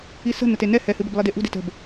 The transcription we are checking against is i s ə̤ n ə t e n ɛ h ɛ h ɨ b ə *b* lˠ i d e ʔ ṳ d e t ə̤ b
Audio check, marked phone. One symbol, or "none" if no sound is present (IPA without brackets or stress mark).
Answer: b